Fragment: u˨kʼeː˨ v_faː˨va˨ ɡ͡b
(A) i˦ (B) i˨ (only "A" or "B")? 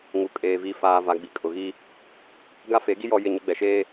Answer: B